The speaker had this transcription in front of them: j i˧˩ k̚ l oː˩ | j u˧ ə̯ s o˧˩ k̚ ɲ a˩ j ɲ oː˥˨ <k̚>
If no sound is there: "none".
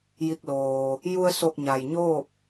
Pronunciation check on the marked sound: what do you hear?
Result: p̚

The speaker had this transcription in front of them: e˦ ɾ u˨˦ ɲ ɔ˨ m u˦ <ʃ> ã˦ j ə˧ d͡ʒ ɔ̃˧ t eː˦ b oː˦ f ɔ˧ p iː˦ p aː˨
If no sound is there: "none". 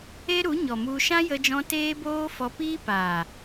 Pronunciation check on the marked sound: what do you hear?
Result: ʃ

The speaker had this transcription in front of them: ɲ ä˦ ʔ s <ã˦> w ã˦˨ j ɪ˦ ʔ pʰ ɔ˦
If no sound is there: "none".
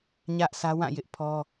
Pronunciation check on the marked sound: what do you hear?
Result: ä˦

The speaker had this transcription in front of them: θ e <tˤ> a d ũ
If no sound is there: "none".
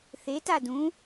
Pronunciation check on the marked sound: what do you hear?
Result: t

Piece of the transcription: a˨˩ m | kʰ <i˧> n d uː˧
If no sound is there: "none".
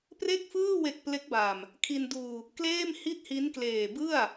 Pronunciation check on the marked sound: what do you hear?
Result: i˧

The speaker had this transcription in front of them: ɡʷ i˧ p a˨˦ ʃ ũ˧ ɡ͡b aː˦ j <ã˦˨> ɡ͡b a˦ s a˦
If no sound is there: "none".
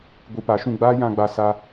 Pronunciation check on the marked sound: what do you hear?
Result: ã˦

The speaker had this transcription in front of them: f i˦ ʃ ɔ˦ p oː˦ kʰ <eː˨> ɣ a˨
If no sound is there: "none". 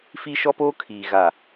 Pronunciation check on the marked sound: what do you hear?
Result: iː˨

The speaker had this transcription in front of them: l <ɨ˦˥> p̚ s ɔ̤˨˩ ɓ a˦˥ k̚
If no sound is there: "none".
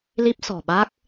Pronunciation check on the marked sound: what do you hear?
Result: i˦˥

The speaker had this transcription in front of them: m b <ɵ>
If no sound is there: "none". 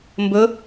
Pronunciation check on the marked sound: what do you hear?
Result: ɵ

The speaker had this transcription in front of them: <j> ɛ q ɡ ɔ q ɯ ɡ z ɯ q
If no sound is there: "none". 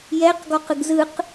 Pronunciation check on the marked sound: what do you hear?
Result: j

